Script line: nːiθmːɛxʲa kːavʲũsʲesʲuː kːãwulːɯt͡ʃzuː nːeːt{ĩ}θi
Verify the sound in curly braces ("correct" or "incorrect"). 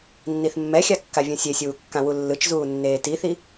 incorrect